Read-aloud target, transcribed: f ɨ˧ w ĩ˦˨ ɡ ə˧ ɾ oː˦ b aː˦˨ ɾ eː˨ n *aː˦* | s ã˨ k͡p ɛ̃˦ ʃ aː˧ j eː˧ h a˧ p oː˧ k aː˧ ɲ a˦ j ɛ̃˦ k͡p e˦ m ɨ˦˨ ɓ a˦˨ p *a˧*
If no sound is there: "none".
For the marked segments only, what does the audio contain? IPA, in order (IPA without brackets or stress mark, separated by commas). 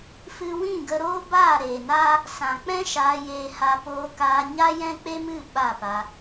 aː˦, a˧